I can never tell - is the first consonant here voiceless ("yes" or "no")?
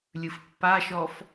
no